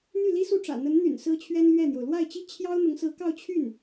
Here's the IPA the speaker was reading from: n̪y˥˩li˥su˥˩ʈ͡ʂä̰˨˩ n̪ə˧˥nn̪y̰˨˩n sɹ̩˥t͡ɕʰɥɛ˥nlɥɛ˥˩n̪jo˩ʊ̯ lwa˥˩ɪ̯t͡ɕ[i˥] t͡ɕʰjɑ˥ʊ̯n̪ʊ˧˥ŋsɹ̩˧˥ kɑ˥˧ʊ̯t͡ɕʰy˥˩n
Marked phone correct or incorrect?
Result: correct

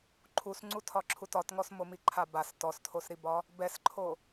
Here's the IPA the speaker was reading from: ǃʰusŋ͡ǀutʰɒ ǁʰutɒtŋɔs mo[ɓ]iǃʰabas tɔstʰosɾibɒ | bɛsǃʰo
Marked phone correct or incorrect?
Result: incorrect: m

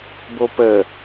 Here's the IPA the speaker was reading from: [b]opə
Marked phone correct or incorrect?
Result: correct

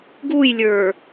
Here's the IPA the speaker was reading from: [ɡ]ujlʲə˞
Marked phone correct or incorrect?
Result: correct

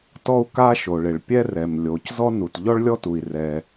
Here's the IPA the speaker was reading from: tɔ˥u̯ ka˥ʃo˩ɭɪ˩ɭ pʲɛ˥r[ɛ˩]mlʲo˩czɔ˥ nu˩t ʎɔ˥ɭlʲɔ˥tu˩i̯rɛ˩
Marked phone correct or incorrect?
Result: correct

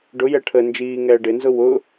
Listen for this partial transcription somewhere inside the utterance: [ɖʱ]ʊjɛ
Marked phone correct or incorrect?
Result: incorrect: ɖ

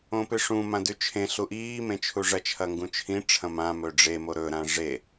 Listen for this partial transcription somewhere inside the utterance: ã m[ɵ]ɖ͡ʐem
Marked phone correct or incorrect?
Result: correct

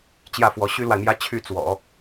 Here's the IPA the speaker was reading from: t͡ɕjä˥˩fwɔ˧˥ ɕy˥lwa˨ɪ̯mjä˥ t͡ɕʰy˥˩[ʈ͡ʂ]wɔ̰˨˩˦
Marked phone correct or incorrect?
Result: incorrect: t͡s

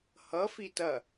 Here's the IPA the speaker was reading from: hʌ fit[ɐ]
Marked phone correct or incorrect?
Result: correct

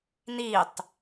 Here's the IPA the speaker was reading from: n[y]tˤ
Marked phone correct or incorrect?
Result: incorrect: i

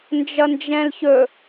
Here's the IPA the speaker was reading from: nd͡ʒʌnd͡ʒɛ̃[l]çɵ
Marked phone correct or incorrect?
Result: correct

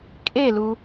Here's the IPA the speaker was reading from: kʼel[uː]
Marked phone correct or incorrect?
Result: incorrect: u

